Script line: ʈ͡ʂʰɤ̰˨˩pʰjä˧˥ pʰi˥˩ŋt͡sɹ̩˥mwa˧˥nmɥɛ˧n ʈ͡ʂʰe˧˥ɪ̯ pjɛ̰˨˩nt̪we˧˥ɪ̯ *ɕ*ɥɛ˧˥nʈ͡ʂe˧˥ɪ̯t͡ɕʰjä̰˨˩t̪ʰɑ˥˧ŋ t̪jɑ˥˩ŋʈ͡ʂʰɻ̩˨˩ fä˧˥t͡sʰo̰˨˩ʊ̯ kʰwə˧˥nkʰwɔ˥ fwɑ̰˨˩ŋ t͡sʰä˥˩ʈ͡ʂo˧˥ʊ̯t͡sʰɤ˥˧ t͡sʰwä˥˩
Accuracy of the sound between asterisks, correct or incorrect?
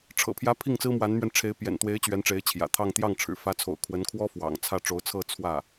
incorrect